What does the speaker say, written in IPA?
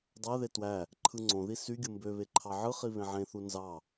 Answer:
dˤæðe twæ | ǃʰɯŋ͡ǀõði sy ɡʲɯmbøβe ǃʰɑʕɯχi βẽʕẽθu nzɑ

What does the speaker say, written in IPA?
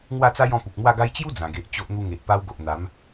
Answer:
ŋwa˥˧t͡sa˦jɔ̃˧ pu˨k̚mwa˥˧ɡa˦j t͡ɕju˦d͡zã˨˩ɡe˨ʔ t͡ɕo˦ʔn̪u˦ ŋe˨ʔpa˧wɡo˨ʔ n̪a˨˦m

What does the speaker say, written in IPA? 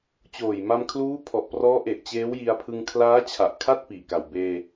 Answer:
t͡ɕoː˨˩jma˧mkʰluː˦˥ pʰɔ˨˩ʔ prɔː˦˥ʔe˨˩ʔ t͡ɕeː˦˥w ji˧a̯pʰɯ˧ŋ kʰlaː˦˥t͡ɕʰa˨˩ʔ kʰa˥˩t̚piː˨˩ka˨˩w beː˧

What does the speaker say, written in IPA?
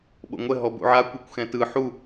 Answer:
ɓo̰ŋʷɛ ɦɔbṵʕa kʷɛkʷxɛ̃tɯ ħu

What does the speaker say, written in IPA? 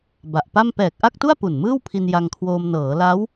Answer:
ba˨˩ʔpa˥˩m pɛː˨˩k̚ ʔa˥˩k̚tu˥˩a̯ pu˨˩nmɯː˥˩wpʰi˧n ja˧ŋkʰwoː˧m nɤː˩˦la˦˥w

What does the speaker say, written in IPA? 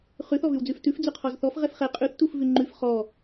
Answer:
χʉθ ɔvʉwd͡zʉftʉf d͡zʉqʰɔzθɔf ʁɛfχɛ qʼʉθ tufvʉŋ͡ǃʉf χɔ

